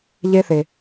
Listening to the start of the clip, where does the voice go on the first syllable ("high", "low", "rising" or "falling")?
high